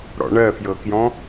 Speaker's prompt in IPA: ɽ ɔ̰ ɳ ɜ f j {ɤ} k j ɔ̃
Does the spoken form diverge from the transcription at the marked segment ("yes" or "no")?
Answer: no